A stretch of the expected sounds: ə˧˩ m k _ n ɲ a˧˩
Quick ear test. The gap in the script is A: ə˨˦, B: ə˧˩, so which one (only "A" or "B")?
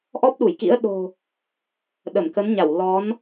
A